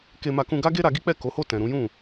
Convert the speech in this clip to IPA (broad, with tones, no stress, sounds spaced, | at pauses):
k e˧ m a˧ k ũ˧ ɡ a˦ ɡ e˦ ɾ a˧ ɡ i˦ k͡p ɛ˦˨ k o˨˦ h o˦˨ t ɛ̃˨ ɾ ũ˨˦ j ũ˦˨